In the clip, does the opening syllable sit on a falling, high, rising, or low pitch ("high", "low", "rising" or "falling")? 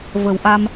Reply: low